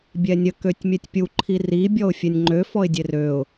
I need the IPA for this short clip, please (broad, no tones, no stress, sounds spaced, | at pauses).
bʲ ɛ nʲ ə k ø tʲ mʲ ɛ tʲ pʲ u ǃʰ i r i bʲ ɔ ʊ̯ fʲ ɛ nʲ ŋ͡ǃ ø f ɔ ɪ̯ dʲ e r ø ʊ̯